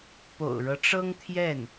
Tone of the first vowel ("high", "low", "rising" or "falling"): low